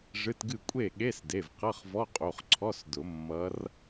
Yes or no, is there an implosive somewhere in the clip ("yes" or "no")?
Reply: yes